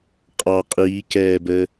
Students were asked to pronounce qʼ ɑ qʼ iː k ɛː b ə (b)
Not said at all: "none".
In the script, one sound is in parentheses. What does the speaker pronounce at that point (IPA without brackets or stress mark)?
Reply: none